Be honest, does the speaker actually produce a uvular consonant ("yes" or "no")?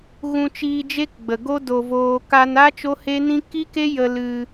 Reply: no